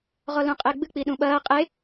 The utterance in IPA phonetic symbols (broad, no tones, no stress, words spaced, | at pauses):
ʁɔlũqʼeɡ͡bɨ k͡piɗũɓɐː qʼe